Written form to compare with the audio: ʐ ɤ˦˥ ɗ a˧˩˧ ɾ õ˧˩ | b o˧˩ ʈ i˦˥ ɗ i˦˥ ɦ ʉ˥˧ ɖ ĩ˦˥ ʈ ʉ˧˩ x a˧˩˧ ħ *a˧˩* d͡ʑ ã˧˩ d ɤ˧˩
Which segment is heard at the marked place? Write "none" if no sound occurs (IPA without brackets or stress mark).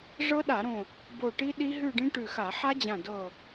a˦˥